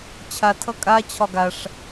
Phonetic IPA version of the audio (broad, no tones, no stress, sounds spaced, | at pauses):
t͡ɕʰ a tʰ ʌ kʼ a t͡ɕʰ ɒ ɡ a ʂ